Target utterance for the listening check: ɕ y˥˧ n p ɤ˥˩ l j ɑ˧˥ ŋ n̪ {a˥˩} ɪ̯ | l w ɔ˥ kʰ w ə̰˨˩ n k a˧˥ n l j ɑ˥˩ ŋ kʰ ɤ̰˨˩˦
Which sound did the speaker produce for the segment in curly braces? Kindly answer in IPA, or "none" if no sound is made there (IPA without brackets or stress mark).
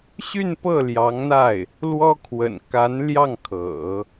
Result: a˥˩